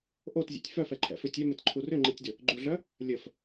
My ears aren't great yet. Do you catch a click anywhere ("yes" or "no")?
yes